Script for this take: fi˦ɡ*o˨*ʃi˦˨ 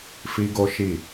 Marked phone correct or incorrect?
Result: incorrect